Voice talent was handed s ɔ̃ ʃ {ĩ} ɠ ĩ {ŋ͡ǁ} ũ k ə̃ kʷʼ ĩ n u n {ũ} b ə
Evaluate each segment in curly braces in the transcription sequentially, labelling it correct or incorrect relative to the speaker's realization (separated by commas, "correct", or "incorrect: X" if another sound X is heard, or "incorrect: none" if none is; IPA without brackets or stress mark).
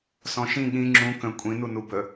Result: correct, correct, incorrect: u